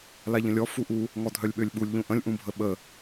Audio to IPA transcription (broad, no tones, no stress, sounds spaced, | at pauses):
l a ʎ ə̃ lʲ ɔ f u ʔ u | ŋ ɔ dʱ œ lʲ ɓ ø lʲ ɓ u lʲ ʎ ũ ʔ ə̃ lʲ ʔ ũ bʱ ə ɓ ə